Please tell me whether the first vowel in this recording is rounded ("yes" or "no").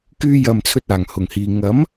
yes